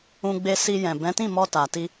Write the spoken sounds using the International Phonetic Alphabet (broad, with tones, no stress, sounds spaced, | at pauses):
ũ˧ ɡ͡b e˧ s i˧ j ɛ̃˨ b ɛ̃˨˦ t ĩ˦˨ m ɔ˧ t a˨ t i˧